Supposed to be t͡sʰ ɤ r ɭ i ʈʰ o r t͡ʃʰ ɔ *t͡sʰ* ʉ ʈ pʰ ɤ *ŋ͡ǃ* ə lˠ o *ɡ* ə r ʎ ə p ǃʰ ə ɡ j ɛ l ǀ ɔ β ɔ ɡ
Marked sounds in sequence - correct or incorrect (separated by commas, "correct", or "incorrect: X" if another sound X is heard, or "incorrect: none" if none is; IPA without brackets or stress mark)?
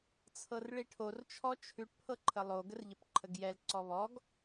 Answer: incorrect: t͡ʃʰ, incorrect: ǃʰ, correct